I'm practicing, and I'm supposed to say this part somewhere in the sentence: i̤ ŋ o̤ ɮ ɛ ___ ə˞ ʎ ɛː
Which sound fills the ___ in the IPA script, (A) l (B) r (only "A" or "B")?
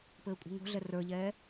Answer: B